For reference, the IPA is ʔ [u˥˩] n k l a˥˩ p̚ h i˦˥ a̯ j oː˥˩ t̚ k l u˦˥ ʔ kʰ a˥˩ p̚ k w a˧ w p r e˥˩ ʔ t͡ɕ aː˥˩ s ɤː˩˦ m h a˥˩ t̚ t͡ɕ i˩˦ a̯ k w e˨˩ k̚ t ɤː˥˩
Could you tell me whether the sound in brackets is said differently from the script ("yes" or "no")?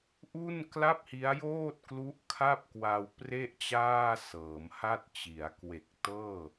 no